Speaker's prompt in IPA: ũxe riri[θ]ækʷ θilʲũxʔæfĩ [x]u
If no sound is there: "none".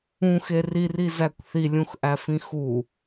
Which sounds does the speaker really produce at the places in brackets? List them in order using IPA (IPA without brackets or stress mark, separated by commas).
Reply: z, x